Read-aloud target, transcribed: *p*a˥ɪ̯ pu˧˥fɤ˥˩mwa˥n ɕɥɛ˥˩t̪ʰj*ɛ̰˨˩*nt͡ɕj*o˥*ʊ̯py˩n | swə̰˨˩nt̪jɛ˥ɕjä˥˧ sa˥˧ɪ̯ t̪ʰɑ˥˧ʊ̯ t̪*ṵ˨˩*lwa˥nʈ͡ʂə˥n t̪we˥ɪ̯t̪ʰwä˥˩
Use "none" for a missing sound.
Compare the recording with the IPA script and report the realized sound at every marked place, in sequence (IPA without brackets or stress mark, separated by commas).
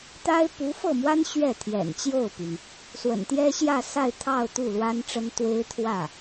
t̪, ɛ̰˨˩, o˥˩, u˥˩